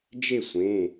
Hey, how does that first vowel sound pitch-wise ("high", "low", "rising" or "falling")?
falling